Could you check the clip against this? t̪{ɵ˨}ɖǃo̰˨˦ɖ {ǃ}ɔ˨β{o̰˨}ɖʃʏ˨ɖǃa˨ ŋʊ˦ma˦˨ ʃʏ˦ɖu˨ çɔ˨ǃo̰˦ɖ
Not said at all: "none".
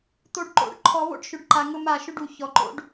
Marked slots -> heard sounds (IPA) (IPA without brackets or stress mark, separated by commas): o˨, ǃʰ, o̰˦